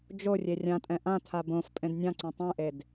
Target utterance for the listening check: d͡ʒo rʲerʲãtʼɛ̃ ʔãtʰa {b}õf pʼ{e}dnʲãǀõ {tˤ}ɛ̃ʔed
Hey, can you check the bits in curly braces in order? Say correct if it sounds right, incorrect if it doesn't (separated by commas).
correct, incorrect, correct